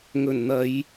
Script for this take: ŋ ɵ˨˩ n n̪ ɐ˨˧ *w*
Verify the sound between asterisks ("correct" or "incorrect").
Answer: incorrect